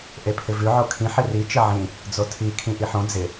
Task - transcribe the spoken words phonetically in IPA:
ʔepʰɪvʉ ʕokʰĩ ħɪri t͡ʃɪʕĩ | d͡zotʰi kʰĩʔiħõ d͡zɪ

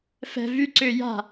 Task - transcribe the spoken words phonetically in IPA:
fɛ̤ vyǀʏː ja̤

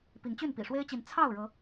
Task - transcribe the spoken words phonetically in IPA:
pi˨˦ŋt͡ɕy˥˨n pḭ˨˩ʂwe˦ɪ̯t͡ɕi˨˦n t͡sʰɑ˥˨ʊ̯ɻɤ˨˦

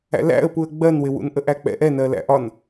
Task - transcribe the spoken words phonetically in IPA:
æ̰læ̰ə̯puə̯ ɡ͡bɜnwɪwṵn ʔəʔæk͡pɛ̰ ʔɛnɜ læ̰ʔɒn

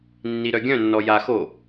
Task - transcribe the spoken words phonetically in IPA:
nːiɾœɡʲœ̃ nːɔja xo

